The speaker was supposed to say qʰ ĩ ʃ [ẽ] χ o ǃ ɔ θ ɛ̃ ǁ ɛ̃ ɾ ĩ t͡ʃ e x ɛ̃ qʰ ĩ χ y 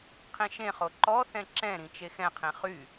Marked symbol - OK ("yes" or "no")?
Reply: yes